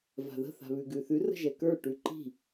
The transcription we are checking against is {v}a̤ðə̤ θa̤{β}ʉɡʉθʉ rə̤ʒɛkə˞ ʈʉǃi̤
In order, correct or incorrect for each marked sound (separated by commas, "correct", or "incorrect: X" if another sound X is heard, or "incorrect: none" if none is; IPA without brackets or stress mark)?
correct, correct